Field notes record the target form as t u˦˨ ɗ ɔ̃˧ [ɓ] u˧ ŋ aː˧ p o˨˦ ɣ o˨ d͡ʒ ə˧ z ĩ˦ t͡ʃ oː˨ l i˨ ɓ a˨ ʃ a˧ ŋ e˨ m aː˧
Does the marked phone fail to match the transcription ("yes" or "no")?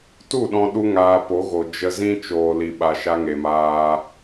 yes